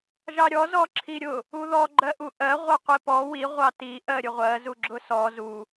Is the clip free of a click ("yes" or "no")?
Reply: no